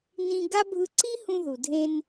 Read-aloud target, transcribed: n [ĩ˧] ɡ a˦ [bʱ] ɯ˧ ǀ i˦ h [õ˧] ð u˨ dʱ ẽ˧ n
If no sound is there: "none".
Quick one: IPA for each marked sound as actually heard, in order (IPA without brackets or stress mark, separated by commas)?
ĩ˧, bʱ, ũ˧